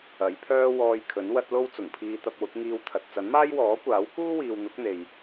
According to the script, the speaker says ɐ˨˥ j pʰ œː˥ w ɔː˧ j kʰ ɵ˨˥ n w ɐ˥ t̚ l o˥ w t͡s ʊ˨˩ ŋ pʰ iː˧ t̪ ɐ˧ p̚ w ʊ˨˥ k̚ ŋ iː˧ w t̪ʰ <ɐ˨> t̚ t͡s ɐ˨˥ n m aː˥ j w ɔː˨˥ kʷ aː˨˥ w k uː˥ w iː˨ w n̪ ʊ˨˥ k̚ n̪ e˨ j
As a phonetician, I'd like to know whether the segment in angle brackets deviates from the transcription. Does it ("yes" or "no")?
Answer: no